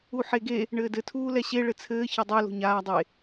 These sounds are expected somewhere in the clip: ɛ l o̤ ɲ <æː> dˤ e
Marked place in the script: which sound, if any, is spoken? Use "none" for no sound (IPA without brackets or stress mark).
aː